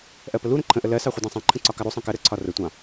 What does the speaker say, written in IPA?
ʔ ɜ p ə l u ɾ ə̃ ǃʰ ə̃ ʔ ə l ɜ s ɑ χʷ ʌ d æ̃ sˤ æ̃ ǃʰ ə̃ ǀ ɒ k ɑ ɾ u sˤ ɑ̃ k ɜ ɾ ə ǀʰ ɒ r ə tʷ ɑ̃

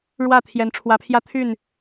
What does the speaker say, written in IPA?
ɻ w ä˥˩ t̪ʰ j ɛ˧˥ n ʈ͡ʂʰ w ä˧˥ pʰ j ä˥ t̪ʰ y˥˩ n

